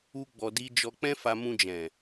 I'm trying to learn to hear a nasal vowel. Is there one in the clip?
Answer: yes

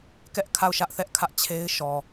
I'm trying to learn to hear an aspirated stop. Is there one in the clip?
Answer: yes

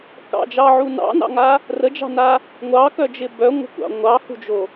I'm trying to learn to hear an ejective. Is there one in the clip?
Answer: no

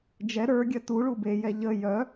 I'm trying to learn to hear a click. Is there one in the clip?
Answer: no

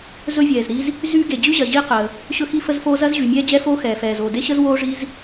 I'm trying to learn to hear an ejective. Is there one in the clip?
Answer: no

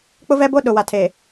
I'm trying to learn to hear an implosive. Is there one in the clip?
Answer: yes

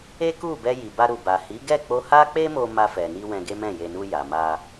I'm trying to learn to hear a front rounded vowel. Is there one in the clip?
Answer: no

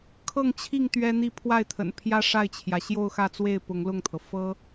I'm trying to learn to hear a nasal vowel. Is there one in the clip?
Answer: no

